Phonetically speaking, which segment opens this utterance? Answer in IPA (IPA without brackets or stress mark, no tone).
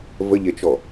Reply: v